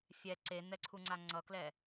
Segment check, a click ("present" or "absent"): present